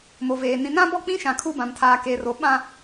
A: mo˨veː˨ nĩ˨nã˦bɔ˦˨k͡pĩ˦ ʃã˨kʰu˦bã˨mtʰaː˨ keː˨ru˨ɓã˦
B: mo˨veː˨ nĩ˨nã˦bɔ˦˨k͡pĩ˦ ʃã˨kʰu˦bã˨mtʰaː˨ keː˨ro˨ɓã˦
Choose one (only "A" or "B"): B